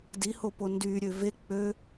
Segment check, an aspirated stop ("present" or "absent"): absent